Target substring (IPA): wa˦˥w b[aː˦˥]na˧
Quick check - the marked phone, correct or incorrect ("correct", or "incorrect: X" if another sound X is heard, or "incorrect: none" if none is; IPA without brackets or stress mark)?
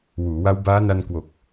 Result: correct